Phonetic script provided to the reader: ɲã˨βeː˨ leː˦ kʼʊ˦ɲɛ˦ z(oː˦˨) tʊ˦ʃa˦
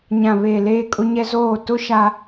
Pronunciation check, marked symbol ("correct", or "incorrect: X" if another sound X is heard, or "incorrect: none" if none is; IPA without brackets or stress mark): correct